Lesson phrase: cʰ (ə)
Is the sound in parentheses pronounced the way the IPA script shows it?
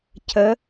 yes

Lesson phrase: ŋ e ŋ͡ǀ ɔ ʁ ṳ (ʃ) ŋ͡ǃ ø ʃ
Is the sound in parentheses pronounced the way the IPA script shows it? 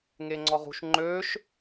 yes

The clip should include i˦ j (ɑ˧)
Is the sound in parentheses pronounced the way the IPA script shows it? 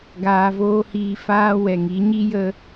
no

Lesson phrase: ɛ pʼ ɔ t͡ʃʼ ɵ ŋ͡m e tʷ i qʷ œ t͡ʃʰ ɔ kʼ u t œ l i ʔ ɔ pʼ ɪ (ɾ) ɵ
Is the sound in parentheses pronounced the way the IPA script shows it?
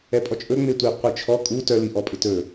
no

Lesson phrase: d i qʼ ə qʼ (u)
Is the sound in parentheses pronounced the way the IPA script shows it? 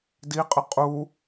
yes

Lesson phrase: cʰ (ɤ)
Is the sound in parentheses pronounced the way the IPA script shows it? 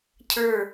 no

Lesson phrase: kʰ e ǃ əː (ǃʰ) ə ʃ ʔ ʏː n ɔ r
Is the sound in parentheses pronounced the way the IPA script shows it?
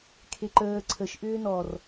no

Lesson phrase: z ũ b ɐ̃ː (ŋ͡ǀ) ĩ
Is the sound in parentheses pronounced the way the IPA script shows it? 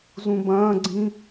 no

